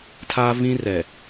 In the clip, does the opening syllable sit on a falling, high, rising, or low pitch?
high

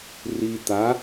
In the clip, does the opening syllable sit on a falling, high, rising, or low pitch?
low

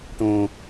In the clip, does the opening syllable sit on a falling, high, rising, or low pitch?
low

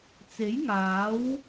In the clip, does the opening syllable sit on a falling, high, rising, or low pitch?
rising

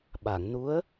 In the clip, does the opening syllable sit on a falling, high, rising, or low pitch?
low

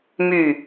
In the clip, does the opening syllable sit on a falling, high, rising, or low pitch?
falling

